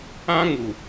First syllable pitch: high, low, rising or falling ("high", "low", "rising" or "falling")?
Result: high